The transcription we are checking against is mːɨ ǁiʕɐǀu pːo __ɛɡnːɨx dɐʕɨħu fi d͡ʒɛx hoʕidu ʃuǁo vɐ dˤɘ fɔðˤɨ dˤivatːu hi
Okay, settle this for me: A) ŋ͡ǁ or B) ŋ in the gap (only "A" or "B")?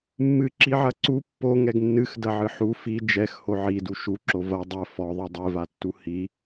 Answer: B